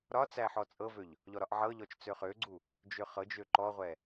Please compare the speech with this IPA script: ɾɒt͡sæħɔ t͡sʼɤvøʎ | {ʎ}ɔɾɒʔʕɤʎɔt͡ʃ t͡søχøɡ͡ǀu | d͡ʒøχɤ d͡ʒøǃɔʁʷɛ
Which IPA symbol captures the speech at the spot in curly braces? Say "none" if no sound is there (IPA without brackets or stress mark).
ʎ